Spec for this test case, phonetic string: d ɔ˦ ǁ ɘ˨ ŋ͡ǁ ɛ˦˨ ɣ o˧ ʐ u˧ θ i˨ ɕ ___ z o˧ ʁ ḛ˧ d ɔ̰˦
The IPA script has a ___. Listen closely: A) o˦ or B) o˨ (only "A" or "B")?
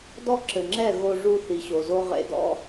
B